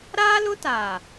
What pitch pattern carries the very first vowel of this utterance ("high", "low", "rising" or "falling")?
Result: high